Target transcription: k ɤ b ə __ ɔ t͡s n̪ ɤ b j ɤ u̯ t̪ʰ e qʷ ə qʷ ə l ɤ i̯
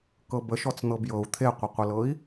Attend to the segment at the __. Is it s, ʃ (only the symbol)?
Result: ʃ